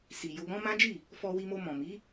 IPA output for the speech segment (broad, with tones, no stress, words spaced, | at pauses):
si˨ jo˧ɡɔ̃˦ mã˦d͡ʒi˦˨ | fɔ˧wi˧mo˧ mɔ̃˨mi˨˦